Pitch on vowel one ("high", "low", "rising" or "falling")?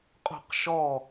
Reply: falling